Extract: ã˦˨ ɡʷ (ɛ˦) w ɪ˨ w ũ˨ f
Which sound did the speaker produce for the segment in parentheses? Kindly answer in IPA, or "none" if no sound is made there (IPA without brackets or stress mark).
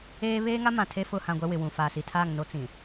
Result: ɛ˦